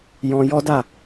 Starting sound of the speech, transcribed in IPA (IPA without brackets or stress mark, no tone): j